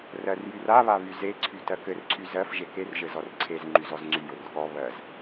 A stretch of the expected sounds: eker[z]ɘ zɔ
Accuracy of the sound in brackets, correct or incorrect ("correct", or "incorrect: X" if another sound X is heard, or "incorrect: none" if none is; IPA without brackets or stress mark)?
incorrect: ʒ